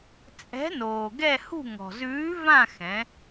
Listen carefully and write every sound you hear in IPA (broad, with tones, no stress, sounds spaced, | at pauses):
t͡sʼ ɛ̤˨˥ n oː˩ ɡ ɛ˦˨ h ṳ˦˨ ŋ ɔ̤˩ z ʉː˨˥ v ã˦˨ x ɛ̃˩˧